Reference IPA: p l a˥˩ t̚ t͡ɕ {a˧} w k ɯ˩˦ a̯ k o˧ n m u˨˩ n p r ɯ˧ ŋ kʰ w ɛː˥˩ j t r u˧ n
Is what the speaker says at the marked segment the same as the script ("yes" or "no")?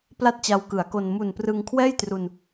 yes